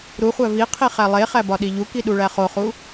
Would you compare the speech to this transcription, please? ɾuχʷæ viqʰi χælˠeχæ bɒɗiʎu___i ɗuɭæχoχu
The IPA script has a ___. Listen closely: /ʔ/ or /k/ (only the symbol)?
k